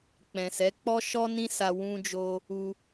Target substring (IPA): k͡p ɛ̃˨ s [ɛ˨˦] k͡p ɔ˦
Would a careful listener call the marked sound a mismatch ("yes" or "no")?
no